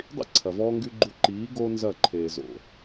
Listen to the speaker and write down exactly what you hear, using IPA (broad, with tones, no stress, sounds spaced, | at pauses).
dˤ ḭ˦ ǀʰ ɐ˨ v ɔː˦ ŋ ɡ y˧ ɡ͡ǃ u˧ ǃ iː˨˦ ɡ o˦ n z ɐ˦˨ ǃʰ eː˨ z o̰˨